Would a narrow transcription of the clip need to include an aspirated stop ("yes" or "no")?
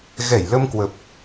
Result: no